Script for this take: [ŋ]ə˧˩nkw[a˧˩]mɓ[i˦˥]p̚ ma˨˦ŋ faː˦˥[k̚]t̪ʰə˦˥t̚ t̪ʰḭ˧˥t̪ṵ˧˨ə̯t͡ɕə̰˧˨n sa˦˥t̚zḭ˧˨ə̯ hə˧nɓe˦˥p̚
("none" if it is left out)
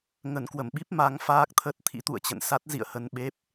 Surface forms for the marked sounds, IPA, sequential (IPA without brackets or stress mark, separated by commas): ŋ, ə˧˩, i˦˥, k̚